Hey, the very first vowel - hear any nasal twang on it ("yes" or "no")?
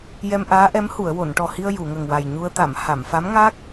no